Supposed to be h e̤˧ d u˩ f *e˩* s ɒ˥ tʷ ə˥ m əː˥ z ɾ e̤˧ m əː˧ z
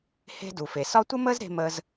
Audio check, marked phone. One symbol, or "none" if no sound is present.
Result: e˩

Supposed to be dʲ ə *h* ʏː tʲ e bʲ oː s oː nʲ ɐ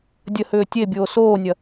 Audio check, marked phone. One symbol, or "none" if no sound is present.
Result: h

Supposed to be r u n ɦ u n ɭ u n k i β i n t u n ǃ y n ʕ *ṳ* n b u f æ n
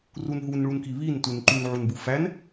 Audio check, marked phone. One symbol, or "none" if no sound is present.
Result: u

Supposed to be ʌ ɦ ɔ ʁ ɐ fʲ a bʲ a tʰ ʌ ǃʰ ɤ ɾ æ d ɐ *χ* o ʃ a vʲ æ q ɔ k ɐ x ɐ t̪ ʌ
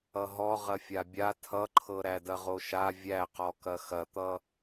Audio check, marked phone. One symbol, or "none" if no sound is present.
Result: ʁ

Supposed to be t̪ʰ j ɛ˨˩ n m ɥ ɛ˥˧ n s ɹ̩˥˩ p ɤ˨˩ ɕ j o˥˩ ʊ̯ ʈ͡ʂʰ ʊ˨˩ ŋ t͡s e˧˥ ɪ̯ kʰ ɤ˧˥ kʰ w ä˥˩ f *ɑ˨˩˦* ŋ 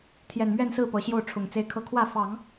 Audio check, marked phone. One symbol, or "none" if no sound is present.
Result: ɑ˨˩˦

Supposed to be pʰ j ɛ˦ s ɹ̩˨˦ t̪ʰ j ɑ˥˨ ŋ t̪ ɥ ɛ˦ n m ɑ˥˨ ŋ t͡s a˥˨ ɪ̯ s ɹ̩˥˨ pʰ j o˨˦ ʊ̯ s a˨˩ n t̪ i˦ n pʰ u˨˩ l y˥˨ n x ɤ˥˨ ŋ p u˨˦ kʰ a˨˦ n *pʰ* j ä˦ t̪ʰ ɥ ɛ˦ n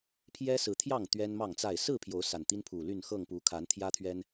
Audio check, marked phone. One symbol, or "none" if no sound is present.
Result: t̪ʰ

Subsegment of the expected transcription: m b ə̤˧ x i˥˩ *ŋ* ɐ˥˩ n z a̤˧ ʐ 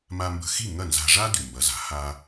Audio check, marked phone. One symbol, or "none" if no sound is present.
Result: ŋ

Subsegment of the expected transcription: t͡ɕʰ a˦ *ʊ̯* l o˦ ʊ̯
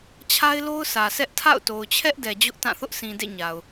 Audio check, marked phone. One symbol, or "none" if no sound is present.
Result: ɪ̯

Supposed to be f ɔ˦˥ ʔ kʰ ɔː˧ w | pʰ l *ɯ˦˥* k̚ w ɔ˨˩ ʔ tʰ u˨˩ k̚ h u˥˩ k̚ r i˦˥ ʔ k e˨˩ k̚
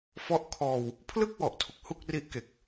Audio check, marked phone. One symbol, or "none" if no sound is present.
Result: ɯ˥˩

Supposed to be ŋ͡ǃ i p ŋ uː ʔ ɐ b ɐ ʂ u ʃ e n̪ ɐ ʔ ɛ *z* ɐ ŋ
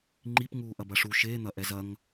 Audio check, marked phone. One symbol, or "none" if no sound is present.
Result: z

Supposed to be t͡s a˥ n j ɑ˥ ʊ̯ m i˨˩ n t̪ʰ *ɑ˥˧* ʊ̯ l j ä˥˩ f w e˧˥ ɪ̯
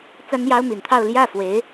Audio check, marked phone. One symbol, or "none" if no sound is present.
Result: ɑ˥˧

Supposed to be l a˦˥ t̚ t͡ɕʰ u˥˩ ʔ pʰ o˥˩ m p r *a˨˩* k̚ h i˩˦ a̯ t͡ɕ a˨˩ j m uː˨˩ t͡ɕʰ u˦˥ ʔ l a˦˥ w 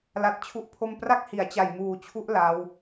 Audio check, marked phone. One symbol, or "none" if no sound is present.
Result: a˥˩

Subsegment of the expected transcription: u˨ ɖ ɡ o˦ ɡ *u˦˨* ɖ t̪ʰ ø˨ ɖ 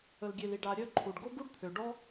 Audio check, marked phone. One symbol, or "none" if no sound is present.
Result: u˦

